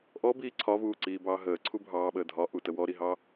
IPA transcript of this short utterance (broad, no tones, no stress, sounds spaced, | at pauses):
ʔ ɔ b iː ǀʰ ɒ v uː ǀ iː b ɑː ɦ əː ǀʰ u bʱ ɑː ɓ əː dʱ ɒ ʔ u t ə w ɔ ɾ i ɦ ɑ